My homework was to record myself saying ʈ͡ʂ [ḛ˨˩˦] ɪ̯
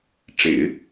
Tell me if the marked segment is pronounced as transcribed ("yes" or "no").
yes